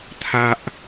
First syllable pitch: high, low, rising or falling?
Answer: low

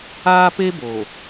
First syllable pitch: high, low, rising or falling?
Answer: high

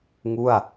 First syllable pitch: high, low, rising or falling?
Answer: falling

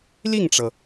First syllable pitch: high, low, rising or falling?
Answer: falling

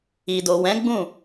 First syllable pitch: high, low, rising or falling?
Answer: low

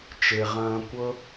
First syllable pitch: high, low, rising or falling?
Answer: low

